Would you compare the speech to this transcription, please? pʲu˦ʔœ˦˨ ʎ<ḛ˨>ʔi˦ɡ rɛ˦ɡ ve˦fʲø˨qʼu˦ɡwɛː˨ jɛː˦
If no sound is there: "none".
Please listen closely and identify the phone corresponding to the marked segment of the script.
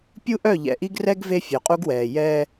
ɛ̰˨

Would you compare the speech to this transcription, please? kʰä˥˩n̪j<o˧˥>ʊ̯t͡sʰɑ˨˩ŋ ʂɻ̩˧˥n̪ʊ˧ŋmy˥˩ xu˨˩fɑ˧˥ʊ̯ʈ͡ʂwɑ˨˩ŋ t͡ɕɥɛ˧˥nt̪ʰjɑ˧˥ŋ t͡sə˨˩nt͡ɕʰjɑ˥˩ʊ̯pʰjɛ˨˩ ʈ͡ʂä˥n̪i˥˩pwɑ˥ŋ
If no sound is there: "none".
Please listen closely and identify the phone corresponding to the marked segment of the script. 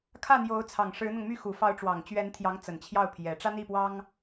o˧˥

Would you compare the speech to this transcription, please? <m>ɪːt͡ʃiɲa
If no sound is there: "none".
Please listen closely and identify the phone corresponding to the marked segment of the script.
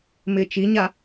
m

